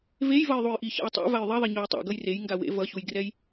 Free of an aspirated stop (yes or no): yes